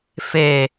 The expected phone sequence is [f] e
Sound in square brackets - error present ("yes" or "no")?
no